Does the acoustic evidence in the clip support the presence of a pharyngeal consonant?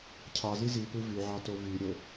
yes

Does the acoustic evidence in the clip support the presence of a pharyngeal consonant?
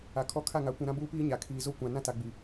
no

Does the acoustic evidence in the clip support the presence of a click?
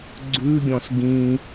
yes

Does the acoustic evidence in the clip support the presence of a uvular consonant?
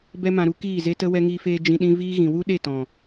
no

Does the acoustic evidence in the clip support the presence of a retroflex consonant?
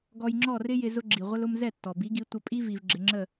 no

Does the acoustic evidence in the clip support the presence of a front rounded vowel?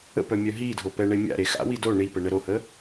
yes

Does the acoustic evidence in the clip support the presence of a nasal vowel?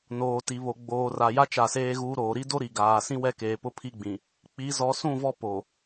yes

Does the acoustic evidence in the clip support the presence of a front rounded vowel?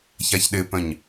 yes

